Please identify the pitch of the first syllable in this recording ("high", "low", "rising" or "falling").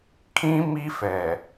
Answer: high